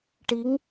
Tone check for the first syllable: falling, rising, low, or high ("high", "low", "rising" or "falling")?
rising